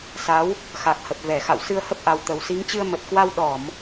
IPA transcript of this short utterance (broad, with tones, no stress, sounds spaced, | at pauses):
s a˨˦ w | x a˨˩ k̚ h ə˨˩ p̚ v ɛ˧˩ x a̰˧˨ w s ɨ˧ ə̯ h ə˦˥ p̚ ʔ a˨˩ w t̪ ə˨˩ w s i˨˦ ŋ t͡ɕ ɨ˧ ə̯ m ə˨˩ t̚ k w a˧ w ɗ ɔ˧˩˨ m